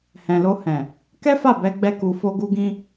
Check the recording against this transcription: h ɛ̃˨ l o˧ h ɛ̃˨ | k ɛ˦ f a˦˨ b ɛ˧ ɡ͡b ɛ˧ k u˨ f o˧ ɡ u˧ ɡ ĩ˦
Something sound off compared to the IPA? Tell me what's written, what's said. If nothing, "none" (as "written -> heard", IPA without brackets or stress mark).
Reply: none